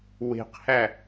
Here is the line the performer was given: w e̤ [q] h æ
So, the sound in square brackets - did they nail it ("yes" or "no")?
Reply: yes